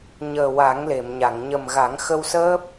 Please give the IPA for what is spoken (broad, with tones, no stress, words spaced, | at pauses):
ɲəː˨˩wa˨˩˦ŋle˨˩˨mɲa˨˩˨ŋ ɲə˨˩mɣa˨˩˦ŋxə˧w səː˦˥p̚